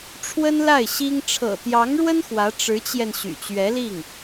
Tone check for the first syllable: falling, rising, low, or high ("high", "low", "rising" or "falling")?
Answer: high